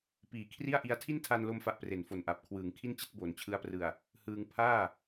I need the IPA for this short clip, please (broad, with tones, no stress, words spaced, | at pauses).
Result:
piː˨˩kʰri˥˩a̯ʔi˦˥a̯ tʰi˥˩ntʰa˧nlo˧mfa˨˩ʔ pre˨˩nfo˨˩nʔa˨˩p̚ kʰwɯː˩˦ŋkʰi˥˩nt͡ɕi˥˩t̚ boː˩˦nt͡ɕʰɯ˦˥a̯prɯ˨˩a̯ | hɯː˧ŋ pʰaː˥˩